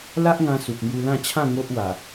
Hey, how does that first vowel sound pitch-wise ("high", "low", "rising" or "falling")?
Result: high